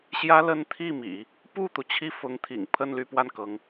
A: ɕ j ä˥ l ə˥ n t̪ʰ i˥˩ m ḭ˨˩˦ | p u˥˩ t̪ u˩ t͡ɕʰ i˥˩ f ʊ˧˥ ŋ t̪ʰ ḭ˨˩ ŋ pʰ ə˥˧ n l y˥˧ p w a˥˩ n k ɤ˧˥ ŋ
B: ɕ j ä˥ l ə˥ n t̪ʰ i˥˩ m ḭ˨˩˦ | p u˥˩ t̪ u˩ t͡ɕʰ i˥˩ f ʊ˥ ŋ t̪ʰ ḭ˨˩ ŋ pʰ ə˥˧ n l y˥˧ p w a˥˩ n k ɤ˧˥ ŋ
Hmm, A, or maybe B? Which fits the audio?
A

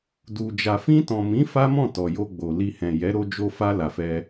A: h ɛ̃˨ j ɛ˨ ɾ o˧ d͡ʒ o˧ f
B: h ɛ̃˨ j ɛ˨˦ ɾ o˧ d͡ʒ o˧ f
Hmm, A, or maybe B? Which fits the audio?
B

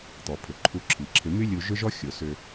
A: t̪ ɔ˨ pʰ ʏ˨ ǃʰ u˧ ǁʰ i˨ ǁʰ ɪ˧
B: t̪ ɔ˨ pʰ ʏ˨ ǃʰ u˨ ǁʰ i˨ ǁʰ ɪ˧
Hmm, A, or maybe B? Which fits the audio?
A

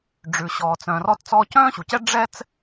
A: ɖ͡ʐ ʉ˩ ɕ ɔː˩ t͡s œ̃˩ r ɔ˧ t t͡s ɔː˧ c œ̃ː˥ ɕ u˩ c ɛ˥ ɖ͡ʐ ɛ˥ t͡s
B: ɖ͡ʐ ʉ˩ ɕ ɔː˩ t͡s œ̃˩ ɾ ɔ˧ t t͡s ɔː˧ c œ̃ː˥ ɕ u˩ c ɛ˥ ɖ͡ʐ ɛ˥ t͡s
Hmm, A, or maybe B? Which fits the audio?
A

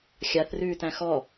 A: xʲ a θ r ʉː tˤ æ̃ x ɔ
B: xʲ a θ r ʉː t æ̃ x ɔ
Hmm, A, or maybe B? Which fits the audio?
B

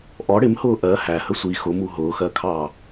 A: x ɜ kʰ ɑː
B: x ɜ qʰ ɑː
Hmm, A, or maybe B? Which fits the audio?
A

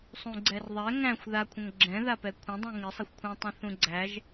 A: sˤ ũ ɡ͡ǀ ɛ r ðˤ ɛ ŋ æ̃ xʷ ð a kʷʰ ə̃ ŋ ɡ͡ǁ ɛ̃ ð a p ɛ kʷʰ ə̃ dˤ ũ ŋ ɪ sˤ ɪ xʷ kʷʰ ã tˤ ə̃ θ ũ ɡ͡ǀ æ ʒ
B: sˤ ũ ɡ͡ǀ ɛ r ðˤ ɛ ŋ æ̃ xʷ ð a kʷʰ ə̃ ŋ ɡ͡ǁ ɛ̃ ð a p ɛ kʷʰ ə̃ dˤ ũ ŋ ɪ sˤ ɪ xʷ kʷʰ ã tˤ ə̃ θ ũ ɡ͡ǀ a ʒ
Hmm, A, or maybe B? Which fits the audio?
A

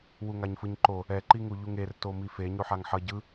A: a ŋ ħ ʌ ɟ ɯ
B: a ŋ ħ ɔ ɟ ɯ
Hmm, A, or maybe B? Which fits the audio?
A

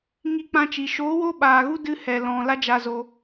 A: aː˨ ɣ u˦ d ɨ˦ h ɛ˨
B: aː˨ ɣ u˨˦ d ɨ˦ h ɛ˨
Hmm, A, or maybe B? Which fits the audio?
A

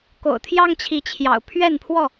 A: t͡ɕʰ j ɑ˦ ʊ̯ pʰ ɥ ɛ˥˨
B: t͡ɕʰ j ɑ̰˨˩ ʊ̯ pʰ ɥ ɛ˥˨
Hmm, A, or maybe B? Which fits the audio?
B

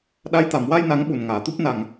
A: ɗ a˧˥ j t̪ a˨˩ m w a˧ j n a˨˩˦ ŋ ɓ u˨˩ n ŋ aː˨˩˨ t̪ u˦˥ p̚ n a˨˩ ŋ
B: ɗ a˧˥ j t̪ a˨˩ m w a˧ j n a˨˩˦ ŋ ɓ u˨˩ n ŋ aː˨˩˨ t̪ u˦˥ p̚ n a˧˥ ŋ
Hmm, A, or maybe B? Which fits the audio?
A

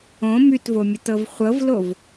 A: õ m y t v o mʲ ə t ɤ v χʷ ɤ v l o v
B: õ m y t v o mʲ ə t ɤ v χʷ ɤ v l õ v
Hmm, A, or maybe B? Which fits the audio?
A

